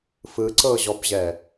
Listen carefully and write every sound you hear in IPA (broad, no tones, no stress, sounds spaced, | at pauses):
f ɯ ǀ ɤ ʑ ɔ b ʑ ɛ